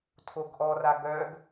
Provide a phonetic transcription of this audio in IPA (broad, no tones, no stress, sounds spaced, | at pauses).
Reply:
tʰ o ɡ ʔ ɔ r a ɡ œ ɡ